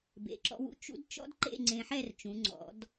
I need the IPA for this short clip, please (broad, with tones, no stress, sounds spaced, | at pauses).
b ḛ˩˧ ǁ ɔ̰˧ w ṵ˧ t͡ʃ ṵ˥ d t͡ʃ ɔ̰˥ d ǃ ḛ˥˧ ŋ͡ǀ ẽ˧ ħ ɛ˥˧ r t͡ʃ ũ˩˧ ŋ͡ǀ ɔ̰˩˧ d